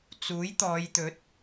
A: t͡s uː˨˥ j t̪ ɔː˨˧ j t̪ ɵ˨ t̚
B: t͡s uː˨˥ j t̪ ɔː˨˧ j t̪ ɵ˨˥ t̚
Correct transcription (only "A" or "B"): B